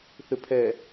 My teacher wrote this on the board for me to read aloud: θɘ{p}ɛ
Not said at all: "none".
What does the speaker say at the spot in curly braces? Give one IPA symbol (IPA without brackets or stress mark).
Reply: pʰ